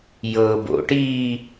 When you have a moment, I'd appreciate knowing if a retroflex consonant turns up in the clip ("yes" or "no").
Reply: yes